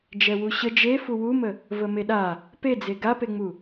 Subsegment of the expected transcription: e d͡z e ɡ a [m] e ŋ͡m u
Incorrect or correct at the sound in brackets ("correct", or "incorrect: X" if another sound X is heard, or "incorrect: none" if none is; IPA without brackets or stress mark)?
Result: incorrect: p